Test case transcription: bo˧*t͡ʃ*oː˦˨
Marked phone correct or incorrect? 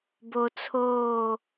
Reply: incorrect